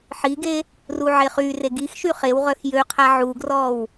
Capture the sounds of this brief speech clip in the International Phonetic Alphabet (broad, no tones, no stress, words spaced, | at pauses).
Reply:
ħiɡe | ruʕeχyre ɡix ʃyχewʁœx jøqʰa ʕuɡrɔw